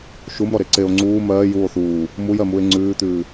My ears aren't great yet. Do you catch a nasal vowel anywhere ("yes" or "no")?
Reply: no